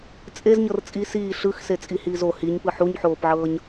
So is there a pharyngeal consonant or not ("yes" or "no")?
yes